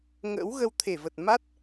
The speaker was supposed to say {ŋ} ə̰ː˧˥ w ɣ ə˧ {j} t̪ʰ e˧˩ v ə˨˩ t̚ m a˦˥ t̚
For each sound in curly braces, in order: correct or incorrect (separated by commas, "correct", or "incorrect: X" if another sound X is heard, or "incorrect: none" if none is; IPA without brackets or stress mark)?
correct, incorrect: w